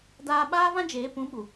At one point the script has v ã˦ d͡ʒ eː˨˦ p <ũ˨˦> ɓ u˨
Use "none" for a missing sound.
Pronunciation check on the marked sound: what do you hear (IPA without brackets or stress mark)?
ũ˨˦